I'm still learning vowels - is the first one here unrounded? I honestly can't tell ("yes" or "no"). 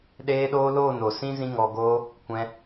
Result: yes